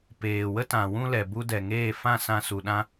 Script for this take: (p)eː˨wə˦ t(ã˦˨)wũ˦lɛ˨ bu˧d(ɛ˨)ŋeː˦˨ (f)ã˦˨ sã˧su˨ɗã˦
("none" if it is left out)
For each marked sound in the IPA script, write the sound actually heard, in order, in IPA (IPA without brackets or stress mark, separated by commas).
p, ã˨, ɛ˨, f